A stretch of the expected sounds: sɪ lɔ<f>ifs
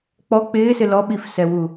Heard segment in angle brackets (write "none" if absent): ɓ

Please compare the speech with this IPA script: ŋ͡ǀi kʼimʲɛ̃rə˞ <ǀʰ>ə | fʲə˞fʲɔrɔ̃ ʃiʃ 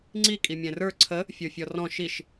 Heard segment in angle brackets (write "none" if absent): ǀʰ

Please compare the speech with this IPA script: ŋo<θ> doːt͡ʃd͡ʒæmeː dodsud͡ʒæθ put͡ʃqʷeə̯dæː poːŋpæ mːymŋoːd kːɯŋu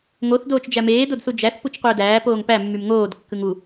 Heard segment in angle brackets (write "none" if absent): θ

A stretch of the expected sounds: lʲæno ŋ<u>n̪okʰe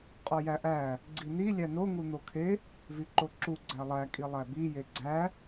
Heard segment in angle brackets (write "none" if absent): u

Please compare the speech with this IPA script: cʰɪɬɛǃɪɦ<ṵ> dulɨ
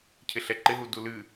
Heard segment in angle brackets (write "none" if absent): u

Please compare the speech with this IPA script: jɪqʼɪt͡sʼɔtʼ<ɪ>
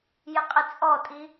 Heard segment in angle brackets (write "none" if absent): i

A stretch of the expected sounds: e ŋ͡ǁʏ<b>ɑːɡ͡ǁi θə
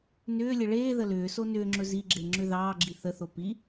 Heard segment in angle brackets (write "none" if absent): ð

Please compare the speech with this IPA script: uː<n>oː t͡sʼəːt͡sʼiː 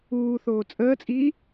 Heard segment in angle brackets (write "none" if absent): θ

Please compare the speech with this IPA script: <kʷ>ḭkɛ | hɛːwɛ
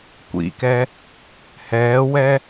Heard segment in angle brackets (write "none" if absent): kʷ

